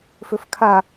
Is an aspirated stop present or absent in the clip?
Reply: present